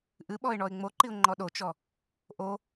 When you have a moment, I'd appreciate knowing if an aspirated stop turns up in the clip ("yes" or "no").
no